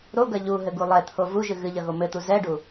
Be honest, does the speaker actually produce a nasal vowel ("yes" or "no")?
no